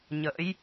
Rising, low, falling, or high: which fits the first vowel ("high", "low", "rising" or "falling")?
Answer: rising